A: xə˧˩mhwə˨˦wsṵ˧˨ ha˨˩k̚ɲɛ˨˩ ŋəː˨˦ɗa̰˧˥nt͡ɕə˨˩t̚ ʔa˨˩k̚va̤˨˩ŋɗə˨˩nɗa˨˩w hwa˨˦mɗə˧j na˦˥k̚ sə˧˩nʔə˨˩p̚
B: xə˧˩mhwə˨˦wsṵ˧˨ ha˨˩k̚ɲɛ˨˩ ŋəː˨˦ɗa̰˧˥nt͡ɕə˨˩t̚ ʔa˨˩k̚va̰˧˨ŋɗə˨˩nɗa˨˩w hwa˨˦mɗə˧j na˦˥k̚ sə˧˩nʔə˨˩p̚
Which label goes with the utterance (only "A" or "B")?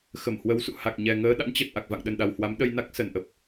B